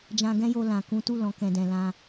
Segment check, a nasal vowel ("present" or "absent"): present